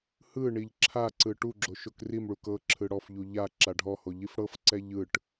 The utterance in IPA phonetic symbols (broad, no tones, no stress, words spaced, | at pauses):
hɯ ɳiʎǁʰaǀɯ ʈuɡ͡ǁo ʃokrimɭuk ɤǁʰɯ ɽɔfʎu ʎa ǁaɖʱɔho ʎifɽɤfǀɛ ʎɯʈ